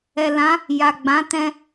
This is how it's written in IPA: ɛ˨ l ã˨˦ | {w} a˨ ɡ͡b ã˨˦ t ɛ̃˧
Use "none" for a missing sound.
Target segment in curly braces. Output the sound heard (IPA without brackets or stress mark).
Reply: j